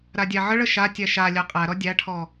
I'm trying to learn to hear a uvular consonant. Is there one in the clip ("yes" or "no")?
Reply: yes